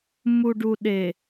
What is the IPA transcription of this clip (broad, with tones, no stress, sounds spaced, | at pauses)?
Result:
m u˨ ɖ u˨ ɗ e˨